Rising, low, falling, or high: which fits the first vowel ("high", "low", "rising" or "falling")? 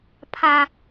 high